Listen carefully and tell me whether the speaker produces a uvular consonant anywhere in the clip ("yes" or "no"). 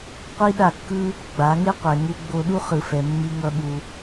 yes